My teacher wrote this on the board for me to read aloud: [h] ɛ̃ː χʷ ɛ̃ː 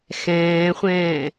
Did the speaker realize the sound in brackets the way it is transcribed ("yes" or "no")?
no